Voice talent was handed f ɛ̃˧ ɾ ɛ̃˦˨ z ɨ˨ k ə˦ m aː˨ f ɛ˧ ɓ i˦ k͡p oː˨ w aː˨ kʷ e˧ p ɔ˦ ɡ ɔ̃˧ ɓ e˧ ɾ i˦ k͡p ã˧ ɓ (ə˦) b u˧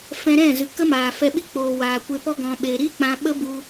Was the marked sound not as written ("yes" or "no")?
no